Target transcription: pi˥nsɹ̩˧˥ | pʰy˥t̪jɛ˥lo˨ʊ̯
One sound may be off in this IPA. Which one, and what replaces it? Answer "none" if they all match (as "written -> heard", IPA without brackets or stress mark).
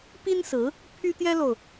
none